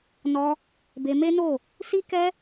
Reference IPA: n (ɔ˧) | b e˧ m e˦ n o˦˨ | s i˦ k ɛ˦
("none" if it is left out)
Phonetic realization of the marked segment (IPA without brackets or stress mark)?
ɔ˧